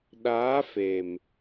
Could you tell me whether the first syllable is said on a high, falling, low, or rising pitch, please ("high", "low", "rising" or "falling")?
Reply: rising